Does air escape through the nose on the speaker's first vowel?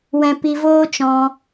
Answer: yes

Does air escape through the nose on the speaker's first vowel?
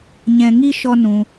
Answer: yes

